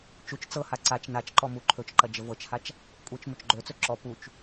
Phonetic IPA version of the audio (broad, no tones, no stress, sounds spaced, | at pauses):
t͡ʃ u t͡ʃ t͡s ɤ h a ǀ a t͡ʃ n a t͡ʃ ǃ ɔ m u ǃʰ ɵ t͡ʃ ǃ ɐ d͡ʒ ə v ɤ t͡ʃ h a t͡ʃ | kʷʼ ɤ t͡ʃ m ɵ t͡ʃ ɡ͡ǃ ɵ t͡s ɵ ǁ ɔ p u t͡ʃ